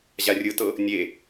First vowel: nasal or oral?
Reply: oral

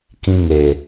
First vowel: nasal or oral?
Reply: nasal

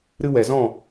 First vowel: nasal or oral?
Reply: oral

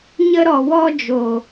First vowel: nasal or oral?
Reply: oral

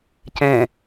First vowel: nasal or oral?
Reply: nasal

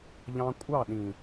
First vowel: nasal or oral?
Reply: nasal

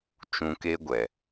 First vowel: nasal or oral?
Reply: nasal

